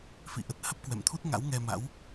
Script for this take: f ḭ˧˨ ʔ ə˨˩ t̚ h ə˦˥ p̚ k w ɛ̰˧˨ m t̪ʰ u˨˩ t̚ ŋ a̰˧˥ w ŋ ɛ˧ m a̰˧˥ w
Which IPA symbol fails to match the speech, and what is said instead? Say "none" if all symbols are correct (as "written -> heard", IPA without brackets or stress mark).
u˨˩ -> u˦˥